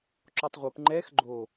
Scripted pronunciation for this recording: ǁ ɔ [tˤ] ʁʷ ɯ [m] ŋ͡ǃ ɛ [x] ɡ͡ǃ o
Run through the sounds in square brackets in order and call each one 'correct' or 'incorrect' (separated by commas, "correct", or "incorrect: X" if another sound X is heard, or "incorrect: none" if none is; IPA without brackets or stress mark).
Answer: correct, incorrect: p, correct